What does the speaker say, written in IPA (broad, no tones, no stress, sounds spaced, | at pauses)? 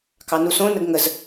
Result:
k ɑ n u s õ n ə ɡ ŋ ə z